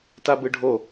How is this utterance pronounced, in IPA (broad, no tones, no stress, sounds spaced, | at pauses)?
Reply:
t a b ɯ ɖʱ o